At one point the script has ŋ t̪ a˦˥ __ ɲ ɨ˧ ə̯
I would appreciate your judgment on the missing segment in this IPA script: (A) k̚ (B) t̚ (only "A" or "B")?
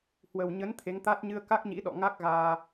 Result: B